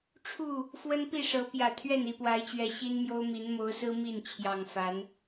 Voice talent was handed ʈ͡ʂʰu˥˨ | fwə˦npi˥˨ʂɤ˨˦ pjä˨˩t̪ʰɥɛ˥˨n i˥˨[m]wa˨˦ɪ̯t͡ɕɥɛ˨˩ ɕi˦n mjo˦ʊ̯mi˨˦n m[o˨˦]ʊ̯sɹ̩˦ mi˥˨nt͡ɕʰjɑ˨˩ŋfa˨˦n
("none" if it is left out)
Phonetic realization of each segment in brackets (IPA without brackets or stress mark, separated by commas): p, o˨˦